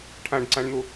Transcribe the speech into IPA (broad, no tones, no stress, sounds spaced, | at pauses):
ʈʰ ã ɖ ǀ ã ɳ n̪ o